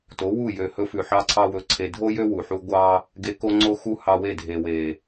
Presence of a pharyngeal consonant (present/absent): present